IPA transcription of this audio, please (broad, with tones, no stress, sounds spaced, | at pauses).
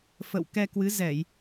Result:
f ə̰˧˨ w k ɛ˧ k w ɨ˨˦ z ɛ˧˩˨ j